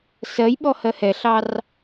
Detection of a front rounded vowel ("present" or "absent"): absent